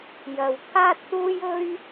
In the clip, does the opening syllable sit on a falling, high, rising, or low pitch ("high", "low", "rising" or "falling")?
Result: low